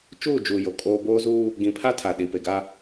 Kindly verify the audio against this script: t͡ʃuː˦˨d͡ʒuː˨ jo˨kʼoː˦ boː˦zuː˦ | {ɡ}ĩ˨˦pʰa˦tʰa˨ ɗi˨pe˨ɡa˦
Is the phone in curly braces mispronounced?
no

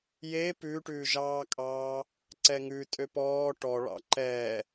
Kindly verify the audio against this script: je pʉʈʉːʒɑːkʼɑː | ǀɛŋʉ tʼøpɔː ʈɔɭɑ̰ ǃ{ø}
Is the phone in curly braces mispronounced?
yes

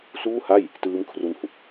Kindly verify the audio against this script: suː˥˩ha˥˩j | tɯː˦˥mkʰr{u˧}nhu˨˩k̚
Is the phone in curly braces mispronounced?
no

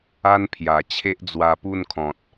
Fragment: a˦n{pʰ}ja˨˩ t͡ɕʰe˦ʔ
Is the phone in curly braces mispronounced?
no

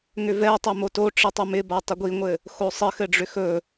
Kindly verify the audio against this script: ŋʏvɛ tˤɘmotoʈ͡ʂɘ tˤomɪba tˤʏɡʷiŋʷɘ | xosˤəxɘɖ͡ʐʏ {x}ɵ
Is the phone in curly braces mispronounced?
no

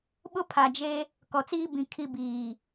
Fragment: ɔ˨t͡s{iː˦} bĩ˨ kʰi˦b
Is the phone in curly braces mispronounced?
no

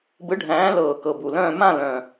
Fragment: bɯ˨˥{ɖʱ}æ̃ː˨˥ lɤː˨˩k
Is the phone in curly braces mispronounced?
no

